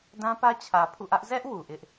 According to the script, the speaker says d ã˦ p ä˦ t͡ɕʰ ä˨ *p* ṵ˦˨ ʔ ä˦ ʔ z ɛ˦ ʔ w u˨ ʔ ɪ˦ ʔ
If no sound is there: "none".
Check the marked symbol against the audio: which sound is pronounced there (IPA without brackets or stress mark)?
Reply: pʰ